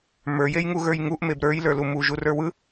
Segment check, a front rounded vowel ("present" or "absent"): absent